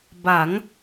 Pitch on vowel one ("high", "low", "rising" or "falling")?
rising